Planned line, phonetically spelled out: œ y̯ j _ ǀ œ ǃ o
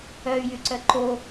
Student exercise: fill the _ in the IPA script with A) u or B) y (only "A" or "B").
B